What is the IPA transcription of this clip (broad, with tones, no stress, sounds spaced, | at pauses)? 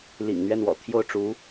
l ḭ˨˩ ŋ n̪ ɥ ɛ˥˩ n w ɔ̰˨˩ t̪ʰ j o˥˩ ʊ̯ ʈ͡ʂ u˧˥